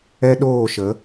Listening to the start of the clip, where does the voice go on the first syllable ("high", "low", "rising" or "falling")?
high